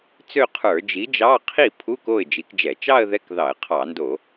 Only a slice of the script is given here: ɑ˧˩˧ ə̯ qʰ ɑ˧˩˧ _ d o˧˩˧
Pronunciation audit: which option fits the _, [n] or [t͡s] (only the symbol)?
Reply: n